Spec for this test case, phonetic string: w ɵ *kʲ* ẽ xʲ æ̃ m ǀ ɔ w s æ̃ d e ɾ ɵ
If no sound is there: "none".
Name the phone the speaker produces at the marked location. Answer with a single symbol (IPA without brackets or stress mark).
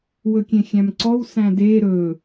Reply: kʲ